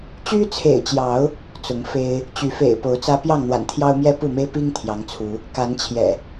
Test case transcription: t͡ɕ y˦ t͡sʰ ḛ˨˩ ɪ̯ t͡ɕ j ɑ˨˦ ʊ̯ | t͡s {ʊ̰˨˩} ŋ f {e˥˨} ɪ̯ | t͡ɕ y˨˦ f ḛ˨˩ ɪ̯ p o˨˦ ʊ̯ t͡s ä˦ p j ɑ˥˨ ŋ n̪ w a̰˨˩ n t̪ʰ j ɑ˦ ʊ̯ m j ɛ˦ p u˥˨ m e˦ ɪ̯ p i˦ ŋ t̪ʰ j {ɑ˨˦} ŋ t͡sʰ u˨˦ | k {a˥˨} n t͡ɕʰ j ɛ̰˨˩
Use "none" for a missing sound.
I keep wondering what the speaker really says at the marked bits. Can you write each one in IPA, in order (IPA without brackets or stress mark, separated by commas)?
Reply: ʊ˨˦, e˦, ɑ˨˦, a˨˦